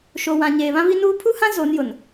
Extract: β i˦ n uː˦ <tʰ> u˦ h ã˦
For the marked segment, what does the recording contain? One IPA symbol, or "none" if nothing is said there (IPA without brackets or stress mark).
pʰ